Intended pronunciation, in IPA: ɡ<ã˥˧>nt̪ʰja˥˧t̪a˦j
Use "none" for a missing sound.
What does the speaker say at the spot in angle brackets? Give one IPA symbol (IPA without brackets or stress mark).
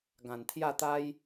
ã˨˩